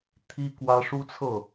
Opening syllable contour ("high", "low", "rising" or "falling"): high